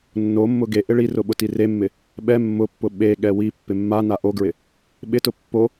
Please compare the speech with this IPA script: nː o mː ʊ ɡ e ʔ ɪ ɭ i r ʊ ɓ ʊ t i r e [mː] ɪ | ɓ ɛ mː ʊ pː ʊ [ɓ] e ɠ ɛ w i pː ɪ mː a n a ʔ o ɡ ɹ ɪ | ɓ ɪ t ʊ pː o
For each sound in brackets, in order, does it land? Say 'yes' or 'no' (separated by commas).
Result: yes, yes